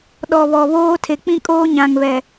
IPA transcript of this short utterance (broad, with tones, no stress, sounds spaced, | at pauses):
ɗ ɔ˨ β ɔ˨ β oː˦ tʰ e˨ k͡p ĩ˦ kʼ oː˦ ɲ ã˨ ŋ β ɛ˨